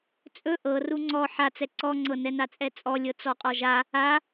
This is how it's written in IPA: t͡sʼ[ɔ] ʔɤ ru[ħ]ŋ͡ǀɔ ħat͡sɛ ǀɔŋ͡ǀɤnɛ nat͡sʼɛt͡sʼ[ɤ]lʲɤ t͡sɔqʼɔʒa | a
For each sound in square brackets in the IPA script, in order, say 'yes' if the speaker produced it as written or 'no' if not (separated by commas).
no, no, no